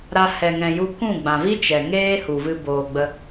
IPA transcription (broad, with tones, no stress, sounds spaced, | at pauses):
ɾ a˧ h ɛ˨ ŋ ɛ̃˨ j u˧ k ũ˦˨ ɡ͡b ã˨ v i˦ t͡ʃ ɛ˨ ŋ eː˦ h u˨ v ɨ˧ b oː˨ ɡ͡b ə˧